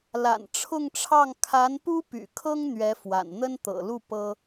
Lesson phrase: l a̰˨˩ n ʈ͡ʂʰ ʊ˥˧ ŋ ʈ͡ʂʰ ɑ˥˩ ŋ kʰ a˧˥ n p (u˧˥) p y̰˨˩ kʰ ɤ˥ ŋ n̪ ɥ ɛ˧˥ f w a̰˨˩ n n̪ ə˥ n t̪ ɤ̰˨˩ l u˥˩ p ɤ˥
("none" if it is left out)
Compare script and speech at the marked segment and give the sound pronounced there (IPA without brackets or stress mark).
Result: u˥